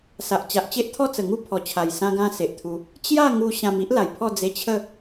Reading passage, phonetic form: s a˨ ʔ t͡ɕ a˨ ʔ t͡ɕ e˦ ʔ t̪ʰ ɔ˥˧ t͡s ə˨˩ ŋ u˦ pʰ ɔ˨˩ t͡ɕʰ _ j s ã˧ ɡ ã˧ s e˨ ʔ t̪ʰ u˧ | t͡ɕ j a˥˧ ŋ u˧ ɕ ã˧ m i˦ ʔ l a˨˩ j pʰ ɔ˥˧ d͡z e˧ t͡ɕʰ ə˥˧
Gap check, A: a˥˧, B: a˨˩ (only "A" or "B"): B